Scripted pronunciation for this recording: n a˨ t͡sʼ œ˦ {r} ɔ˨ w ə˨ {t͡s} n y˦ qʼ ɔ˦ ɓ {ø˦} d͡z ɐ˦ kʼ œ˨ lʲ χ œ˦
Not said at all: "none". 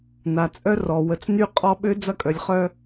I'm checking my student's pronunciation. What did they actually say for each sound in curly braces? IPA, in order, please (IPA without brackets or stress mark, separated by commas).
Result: r, t͡s, ø˦